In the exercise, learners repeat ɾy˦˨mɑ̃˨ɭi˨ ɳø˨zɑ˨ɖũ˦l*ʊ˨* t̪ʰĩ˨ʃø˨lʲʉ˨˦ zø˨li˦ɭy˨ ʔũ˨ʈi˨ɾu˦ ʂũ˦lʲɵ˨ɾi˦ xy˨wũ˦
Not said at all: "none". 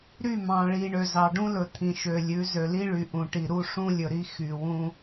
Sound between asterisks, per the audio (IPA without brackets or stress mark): ɵ˨